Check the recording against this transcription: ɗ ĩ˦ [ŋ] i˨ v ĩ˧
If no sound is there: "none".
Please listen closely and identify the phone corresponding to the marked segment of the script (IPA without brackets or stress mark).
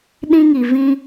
ŋ